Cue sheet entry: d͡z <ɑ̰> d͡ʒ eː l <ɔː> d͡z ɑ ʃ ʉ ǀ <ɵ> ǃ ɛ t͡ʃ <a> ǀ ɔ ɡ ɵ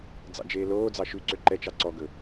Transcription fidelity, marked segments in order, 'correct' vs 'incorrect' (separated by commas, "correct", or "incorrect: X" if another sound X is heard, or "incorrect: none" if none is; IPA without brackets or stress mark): correct, incorrect: oː, incorrect: ø, incorrect: ɑ